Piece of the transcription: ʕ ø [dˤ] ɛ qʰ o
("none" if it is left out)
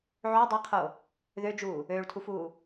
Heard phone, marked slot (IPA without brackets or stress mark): dˤ